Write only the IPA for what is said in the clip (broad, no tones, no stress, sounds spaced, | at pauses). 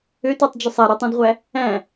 ø t y tˤ d͡ʒ ø sˤ æ ɾ u tˤ ũ d ʁʷ æ | æ̃